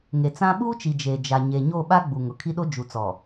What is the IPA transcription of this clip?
ŋ e˨ t͡s ã˦ ɓ uː˦ t͡ʃ i˨ d͡ʒ eː˨ d͡ʒ a˨ ɲ e˨ ɲ o˦˨ ɓ a˦ ɡ͡b u˨ ŋ ʊ˨ kʰ i˦ ɗ o˦ d͡ʒ u˨ t͡s ɔ˨

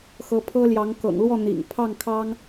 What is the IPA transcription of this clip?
x ɤ˧˥ pʰ ɤ˥ l j ɑ˧˥ ŋ k ɤ̰˨˩ ŋ l w ɔ˥˩ n̪ ḭ˨˩ ŋ pʰ ɑ˥˩ ŋ kʰ ɑ˥ ŋ

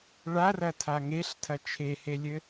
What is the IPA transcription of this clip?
ɭ a r ɐ tʰ a ŋ e ɬ tʰ ɐ t͡ʃʰ e h e lʲ ɘ

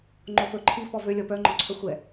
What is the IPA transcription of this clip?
ŋ͡ǃ o f ɵ ǃʰ i f ɔ v ø lʲ ɔ p œ ŋ͡ǃ ɔ ǀʰ œ xʷ ɛ

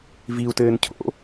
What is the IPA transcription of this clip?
v i u̯ t ɘː n cʰ o̰

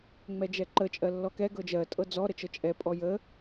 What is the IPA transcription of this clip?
ŋ͡m ɛ d͡ʒ ɛ ǃ ə t͡ʃʼ ɜ lː ɔ k ɛ ɡ ɤ d͡ʒ ɜ tʼ ɤ d͡z ɔ ɾ ə t͡ʃ ɤ t͡ʃʼ ɛ pʼ ɔ j ə

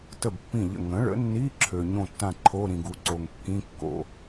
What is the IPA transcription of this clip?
t ə˥˩ b pː ĩ˥˩ ʎ ə̰˥˩ ŋ ə̃˩˥ ɭ ə̰˩˥ nː i˧˥˧ ǁʰ ø˨ ɲ õ˥˩ tː ã˥˩ ǃʰ o˧˥˧ ɾ ĩ˨ ɡ u˩˥ ǀ o˨ ŋ kː ĩ˧˥˧ kː o̰˨

